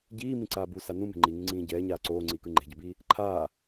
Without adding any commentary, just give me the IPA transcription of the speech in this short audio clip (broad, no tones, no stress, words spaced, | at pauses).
ɟiːmĩǀaː busa nũme̤ ŋ͡ǃiŋĩŋ͡ǀĩː ɟɛːɲaː ǀoːŋ͡ǀiːkɯ ŋ͡ǃe̤ɟʌbiː | ǃʰaː